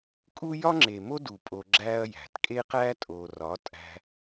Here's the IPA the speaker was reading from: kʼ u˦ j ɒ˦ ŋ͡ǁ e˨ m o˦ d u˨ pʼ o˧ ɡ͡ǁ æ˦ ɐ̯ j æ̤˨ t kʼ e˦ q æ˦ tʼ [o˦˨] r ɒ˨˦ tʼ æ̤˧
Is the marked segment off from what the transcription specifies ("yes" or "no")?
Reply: yes